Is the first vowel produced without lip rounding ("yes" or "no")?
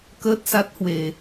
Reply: yes